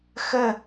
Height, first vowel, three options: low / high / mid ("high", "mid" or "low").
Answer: mid